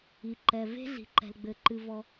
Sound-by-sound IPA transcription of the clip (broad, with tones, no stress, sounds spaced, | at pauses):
i˩ ǃ ɛ˩ v e̤˥ ɮ i̤˩ ǃ ɛ̤˩ l ɡ͡b ɘ˩ ǃ ɨ˩ v ɔ˩